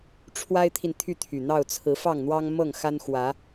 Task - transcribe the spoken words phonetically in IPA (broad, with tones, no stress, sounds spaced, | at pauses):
ʈ͡ʂʰ w a˦ ɪ̯ t̪ʰ i˨ n t̪ʰ y˥˨ t̪ʰ y˨˩ n̪ ɑ˥˨ ʊ̯ t͡sʰ ɹ̩˨˦ f ɑ˥˨ ŋ n̪ w ɑ˦ ŋ m ɤ˥˨ ŋ x a˦ n x w ä˨˦